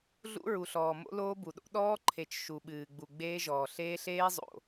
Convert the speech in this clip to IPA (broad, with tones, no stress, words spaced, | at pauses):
ɮṵ˦ɹu˨ɬɔː˨ mo̰˦loː˦bu˨ɗo̰˦ ɗɔː˦ǃʰe˨t͡ʃ ʃu˨ɓɨː˨ ɡ͡bu˨ɡ͡beː˦ʒɔː˨ ɬeː˦ɬeː˦zˤo̰˨